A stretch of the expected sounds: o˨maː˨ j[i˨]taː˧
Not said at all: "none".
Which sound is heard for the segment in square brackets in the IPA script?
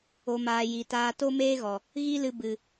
i˨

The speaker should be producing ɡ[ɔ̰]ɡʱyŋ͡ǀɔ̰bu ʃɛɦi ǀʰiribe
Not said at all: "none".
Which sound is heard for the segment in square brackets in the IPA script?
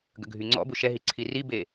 ə̰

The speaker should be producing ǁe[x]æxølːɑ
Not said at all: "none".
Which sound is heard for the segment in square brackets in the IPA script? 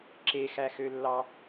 x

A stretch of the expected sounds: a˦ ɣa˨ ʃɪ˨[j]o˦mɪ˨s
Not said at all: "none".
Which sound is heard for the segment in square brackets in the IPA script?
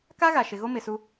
ɣ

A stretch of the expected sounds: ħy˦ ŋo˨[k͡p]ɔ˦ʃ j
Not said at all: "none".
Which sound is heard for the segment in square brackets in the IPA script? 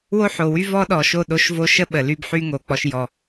k͡p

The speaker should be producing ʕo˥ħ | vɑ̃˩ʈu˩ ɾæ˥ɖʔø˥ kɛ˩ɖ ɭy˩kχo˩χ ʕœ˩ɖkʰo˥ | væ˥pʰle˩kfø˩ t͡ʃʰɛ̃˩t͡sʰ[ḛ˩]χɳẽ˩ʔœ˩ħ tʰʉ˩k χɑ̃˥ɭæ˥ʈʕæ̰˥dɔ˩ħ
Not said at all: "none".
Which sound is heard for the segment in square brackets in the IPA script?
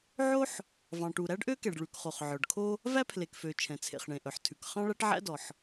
ḛ˩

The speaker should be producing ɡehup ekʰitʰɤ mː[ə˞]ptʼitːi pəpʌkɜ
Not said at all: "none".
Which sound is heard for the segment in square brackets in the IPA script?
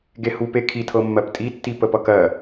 ɜ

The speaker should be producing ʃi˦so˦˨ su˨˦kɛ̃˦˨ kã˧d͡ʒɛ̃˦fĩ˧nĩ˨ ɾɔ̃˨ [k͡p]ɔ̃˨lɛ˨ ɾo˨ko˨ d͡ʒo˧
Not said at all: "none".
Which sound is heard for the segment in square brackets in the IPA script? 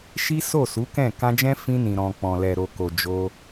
k͡p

